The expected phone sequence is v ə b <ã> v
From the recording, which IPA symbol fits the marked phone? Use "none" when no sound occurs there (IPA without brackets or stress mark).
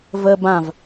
ã